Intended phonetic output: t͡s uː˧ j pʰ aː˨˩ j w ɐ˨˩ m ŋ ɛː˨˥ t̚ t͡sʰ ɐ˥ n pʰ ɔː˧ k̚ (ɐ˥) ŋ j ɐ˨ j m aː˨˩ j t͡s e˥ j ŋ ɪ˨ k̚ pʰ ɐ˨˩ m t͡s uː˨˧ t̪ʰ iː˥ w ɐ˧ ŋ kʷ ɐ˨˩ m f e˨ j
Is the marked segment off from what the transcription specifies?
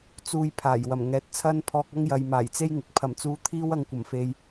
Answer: no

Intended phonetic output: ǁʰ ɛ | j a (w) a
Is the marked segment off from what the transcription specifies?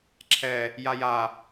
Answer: yes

